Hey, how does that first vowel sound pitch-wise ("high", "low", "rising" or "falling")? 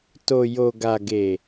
low